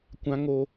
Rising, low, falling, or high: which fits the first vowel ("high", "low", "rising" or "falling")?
high